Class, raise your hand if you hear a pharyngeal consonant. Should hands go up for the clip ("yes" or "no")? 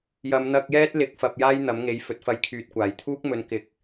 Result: no